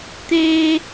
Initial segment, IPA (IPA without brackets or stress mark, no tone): t̪